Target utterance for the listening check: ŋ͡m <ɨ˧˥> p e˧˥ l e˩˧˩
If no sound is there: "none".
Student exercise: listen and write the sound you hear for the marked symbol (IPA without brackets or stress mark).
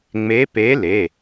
e˧˥